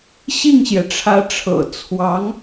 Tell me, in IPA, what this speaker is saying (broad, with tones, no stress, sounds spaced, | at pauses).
ɕ i˥˩ ŋ ɕ j ɛ˩ ʈ͡ʂʰ ä˧˥ ʈ͡ʂʰ ɤ̰˨˩ t͡sʰ w ɑ˧˥ ŋ